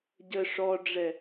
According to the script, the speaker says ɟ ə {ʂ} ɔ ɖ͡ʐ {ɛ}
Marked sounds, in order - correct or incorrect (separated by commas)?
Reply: correct, correct